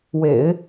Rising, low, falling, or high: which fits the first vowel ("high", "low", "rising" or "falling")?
low